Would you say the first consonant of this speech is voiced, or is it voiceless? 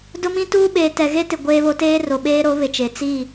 voiced